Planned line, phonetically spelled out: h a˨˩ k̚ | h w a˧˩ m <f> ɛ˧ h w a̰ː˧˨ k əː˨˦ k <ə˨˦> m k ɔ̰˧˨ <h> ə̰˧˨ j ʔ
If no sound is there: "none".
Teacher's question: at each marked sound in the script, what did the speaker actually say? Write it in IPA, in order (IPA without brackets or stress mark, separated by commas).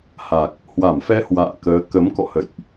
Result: f, ə˨˦, h